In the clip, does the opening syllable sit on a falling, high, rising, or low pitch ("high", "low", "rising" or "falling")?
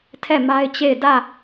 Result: falling